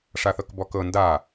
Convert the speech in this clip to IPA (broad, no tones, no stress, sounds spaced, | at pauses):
ʂ a θ ɤ k b ɔ k ɤ n d a